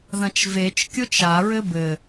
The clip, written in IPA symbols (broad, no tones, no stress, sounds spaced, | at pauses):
ð ɐ̃ t͡ʃ v e t͡ʃ kʲ o t͡ʃ a ɹ ɘ b ɘ